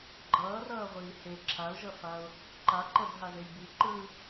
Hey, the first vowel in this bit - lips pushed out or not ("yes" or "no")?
no